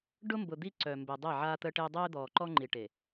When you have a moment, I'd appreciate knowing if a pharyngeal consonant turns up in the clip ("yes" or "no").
yes